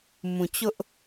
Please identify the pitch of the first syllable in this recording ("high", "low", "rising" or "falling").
low